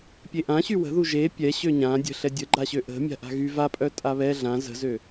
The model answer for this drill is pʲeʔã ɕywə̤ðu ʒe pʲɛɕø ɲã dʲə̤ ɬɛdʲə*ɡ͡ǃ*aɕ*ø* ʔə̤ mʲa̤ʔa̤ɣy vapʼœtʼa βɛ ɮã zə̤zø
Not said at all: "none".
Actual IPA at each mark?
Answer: ɡ͡ǃ, ø

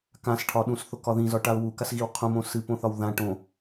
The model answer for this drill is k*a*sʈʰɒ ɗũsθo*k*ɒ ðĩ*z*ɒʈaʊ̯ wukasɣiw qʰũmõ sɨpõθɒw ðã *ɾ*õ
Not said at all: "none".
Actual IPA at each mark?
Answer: ã, k, z, ʈ

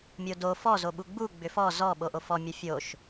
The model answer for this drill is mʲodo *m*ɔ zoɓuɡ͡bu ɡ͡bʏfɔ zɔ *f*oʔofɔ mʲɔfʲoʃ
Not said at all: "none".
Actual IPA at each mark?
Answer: f, ɓ

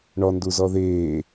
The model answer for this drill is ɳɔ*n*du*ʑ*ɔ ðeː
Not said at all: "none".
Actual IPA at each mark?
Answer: n, z

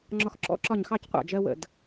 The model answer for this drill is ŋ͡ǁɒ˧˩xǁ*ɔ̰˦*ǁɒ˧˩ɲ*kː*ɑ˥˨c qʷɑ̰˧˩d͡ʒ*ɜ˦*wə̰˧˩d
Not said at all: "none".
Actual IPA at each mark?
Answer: ɔ̰˦, x, ɜ˦

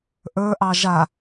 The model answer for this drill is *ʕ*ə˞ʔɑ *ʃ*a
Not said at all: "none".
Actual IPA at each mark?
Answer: ʔ, ʒ

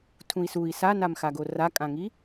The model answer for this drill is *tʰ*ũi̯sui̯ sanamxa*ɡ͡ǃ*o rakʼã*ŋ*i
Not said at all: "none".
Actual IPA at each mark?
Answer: tʰ, ɡ, ŋ

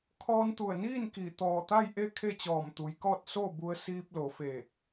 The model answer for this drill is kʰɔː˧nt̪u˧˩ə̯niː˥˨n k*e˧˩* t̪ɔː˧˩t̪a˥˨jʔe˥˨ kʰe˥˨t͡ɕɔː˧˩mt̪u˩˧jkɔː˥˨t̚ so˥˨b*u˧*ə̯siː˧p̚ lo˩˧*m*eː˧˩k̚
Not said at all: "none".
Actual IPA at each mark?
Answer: i˧˩, u˧, f

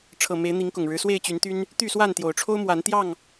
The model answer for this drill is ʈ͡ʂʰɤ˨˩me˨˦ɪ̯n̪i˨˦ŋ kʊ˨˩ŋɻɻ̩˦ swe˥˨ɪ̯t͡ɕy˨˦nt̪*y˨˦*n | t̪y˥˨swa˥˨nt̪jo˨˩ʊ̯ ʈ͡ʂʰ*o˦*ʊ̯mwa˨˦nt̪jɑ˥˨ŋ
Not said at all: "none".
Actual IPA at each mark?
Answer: y˦, o˦

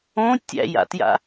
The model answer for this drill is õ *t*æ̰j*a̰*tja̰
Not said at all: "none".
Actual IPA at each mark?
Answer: tʲ, a̰

